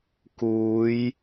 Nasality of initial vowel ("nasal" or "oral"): oral